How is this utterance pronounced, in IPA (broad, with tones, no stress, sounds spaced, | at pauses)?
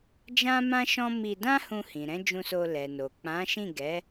d͡ʒ ã˦ m ã˦ ʃ ɔ̃˦ m i˧ d ã˦ h ũ˧ h ĩ˨ ɾ ɛ̃˨˦ d͡ʒ ũ˧ s o˧ l ɛ˨ n o˨ k͡p ã˨˦ ʃ ĩ˦˨ ɡ ɛ˨˦